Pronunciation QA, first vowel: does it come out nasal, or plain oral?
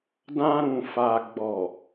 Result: nasal